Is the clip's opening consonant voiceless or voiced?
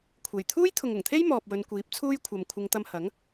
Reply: voiceless